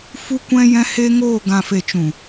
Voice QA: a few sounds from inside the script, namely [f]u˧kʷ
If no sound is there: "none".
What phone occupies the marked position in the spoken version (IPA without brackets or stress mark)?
f